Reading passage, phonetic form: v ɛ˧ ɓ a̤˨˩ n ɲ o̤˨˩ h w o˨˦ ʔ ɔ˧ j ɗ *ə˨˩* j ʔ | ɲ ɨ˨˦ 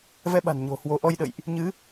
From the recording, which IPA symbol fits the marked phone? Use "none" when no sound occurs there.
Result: ə̰˧˨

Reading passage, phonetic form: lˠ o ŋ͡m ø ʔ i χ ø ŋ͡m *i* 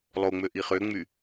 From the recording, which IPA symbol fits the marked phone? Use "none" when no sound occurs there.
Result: y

